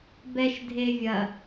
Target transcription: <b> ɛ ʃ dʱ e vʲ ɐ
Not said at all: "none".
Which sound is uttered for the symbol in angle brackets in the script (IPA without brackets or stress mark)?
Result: b